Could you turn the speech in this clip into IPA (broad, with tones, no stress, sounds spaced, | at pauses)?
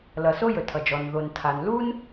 l ʌ˩ s o˥ j ɵ˩ tʰ ʌ˩ d͡ʒ ɔ˩ n ð o˩ n tʰ a˩ n l u˥ n